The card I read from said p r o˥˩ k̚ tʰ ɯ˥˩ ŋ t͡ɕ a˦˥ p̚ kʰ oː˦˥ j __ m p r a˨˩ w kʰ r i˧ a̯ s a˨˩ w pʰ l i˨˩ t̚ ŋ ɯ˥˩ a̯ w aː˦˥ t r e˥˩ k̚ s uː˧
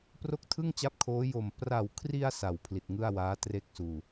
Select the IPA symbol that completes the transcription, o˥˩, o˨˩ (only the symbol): o˨˩